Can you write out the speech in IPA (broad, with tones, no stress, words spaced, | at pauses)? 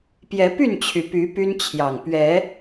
pjɛ˨˦py˥˨nt͡ɕʰy˩ py˨˦ py˦nt͡ɕʰjɑ˨˩ŋ pɥɛ˨˦